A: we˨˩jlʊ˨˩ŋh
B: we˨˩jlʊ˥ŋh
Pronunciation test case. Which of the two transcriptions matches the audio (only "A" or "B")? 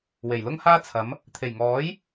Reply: B